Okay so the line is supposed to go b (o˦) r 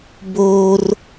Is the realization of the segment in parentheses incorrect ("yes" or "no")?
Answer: yes